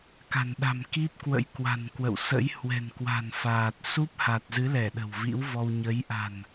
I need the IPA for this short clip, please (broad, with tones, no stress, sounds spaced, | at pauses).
k a̤˨˩ n ɗ a̤˨˩ m k i˦˥ p̚ k w ə̰˧˥ j k w a̤˨˩ n k w ə̰˧˨ w s ə̰˧˥ j h w ɛ̤˨˩ n k w a̤˨˩ n f aː˨˩ t̚ s u˦˥ p̚ h a˨˩ t̚ z ɨ˨˦ l ɛ˧˩ ɗ ə̤˨˩ w v ḭ˧˥ w v ɔ˧ w ɲ ə˨˦ j ʔ a̤˨˩ n